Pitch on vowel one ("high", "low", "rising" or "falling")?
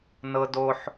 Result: high